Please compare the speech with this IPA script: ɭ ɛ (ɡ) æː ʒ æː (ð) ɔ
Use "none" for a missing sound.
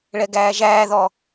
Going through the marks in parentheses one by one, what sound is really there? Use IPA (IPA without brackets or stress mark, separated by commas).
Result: ɡ, ð